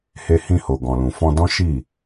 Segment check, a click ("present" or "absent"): absent